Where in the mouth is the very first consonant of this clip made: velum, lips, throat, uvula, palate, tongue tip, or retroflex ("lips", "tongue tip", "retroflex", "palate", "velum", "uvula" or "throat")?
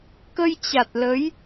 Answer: velum